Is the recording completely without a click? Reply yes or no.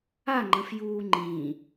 no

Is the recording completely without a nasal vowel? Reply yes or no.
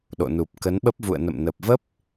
yes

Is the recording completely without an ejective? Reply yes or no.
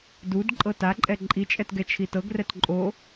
no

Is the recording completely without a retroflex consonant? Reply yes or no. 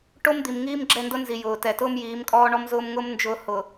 no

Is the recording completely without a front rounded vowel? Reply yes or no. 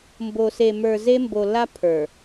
yes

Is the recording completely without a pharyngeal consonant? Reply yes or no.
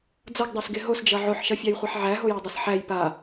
no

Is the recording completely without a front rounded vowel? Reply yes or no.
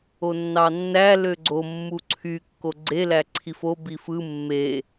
no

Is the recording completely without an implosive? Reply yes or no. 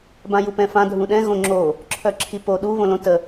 no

